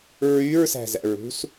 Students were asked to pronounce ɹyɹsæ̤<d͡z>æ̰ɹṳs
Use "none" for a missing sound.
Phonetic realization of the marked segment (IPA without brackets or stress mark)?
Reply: z